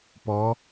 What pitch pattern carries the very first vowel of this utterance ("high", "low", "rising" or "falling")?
rising